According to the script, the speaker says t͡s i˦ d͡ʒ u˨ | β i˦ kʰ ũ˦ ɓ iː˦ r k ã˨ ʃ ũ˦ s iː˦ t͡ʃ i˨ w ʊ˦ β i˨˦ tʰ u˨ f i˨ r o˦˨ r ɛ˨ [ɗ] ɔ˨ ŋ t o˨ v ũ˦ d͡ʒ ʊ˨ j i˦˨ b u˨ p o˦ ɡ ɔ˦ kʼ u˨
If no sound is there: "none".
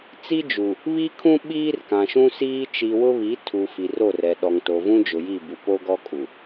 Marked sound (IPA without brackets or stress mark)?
ɗ